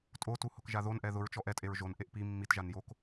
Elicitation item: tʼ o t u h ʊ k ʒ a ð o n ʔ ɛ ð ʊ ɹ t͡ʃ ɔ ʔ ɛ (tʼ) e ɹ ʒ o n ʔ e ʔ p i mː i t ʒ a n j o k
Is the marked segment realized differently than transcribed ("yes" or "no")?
no